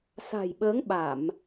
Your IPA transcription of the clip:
sa̤˨˩jɓəː˨˦ŋ ɓa˧˩˨m

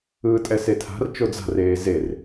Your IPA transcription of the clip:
ɯːtʼɛsetʰa̤r t͡ʃod͡za̤r eːzer

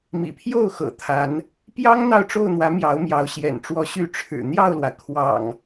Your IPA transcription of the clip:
mḭ˨˩pʰjo˥˨ʊ̯ xɤ̰˨˩t̪ʰa˨˦n | pjɑ˦ŋ n̪ɑ˥˨ʊ̯ʈ͡ʂo˥˨ʊ̯n̪wä˨˦ mjɑ˨˦ʊ̯mjɑ˨˦ʊ̯ɕjɛ̰˨˩nʈ͡ʂwɔ˨˦ ɕy˨˦ ʈ͡ʂʰɻ̩˨˩n̪jɑ˥˨ʊ̯lwä˩ kʰwɑ̰˨˩ŋ

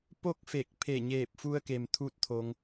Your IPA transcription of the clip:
po˥˨k̚fe˧˩k̚ pʰe˧˩ɲeː˧˩p̚fu˧ə̯ke˩m t̪ʰu˥˨t̚t̪ʰo˧ŋ

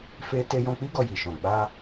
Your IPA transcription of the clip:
fe˦ te˧jɔ̃˧k͡pi˦ ɡɔ˧ji˨ʃɔ̃˨ ɡ͡ba˧

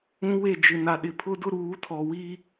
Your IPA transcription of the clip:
ũ˦we˦˨ d͡ʒɪ˨na˨ɗɪ˨ pʰʊ˦dʊ˦ ɾuː˨˦tʰɔ˨wi˦

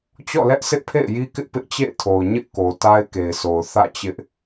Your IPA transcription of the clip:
t͡ɕɔ̰˦˨lɛ˦ʔsʰɪ˦ʔpʰḛ˦˨ɪ̯ ji˦kɪ˦ʔ pɪ˦ʔt͡ɕḛ˦˨ɪ̯tʰo˨ʊ̯ ɲɪ˦ʔko˨ ta˦ɪ̯ ke˨ɪ̯sʰo˨ʊ̯ θä̰˦˨t͡ɕɪ˦ʔ

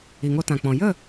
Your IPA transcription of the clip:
i˨ŋo˧tã˨k͡pɔ̃˨ jə˦˨

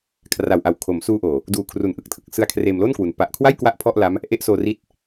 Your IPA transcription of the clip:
kʰra˨˩wʔa˨˩w kʰo˩˦msuː˧ʔoː˨˩ | duː˨˩kʰru˨˩nʔɯ˨˩k̚tʰɯ˨˩k̚ sɯ˧a̯kʰreː˧m lo˥˩nkwu˩˦n pa˨˩ʔkʰwa˥˩j kwa˥˩ʔpʰɔ˥˩ʔla˦˥m | ʔe˦˥ʔsoː˧ri˦˥t̚

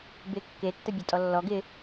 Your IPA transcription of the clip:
bɪ kːe tːəbʲɐtʼɔlːɔɡ ɪ

